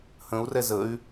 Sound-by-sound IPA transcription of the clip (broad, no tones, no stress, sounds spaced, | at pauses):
h ə̃ u̯ r ɛ z ə y̯